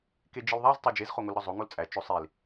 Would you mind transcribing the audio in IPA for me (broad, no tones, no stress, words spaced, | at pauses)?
ked͡ʒelðˤæz tˤed͡ʒez χoŋolɾɒzˤo ŋolt͡sʼæ t͡ʃosˤil